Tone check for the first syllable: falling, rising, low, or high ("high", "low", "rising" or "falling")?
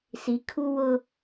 rising